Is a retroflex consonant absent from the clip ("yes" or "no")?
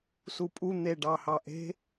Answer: no